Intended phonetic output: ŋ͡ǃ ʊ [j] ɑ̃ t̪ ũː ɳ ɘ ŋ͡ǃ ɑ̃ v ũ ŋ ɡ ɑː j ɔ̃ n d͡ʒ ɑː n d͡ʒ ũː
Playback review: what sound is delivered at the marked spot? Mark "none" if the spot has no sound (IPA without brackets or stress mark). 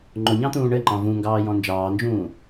ɲ